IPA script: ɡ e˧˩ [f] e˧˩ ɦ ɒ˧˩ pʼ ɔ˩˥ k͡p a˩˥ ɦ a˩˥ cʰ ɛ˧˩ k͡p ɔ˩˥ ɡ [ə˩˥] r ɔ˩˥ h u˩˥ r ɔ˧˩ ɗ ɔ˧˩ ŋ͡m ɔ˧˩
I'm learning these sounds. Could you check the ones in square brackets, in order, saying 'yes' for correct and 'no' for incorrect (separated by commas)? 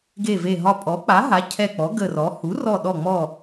no, no